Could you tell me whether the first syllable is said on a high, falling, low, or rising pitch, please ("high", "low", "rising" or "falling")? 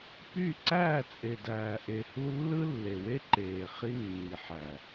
falling